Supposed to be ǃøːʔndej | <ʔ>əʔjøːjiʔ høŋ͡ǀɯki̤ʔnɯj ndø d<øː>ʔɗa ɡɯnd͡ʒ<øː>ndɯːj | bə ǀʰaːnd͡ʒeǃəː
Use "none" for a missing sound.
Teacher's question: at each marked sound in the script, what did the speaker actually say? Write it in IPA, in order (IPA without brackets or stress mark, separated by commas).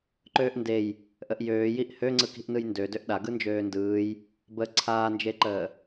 ʔ, ø, øː